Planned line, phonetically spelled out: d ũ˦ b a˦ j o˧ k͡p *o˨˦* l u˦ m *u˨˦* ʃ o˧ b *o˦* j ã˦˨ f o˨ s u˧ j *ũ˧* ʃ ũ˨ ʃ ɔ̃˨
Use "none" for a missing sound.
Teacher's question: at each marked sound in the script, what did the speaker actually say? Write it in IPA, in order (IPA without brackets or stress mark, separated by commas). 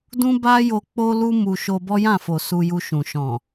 o˦, u˧, ɔ˦, u˧